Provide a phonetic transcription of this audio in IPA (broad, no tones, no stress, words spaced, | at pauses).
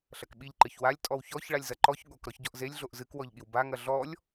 ɬɐkɓiʎ ǃɨçwalʲ tʼɔwçɔç ɭalʲzɐǃɔç ɠok ɾɔçɟɔʔzelʲ ɮoʔzɨkwɔʎɠiw baŋɐ ɮɔlʲ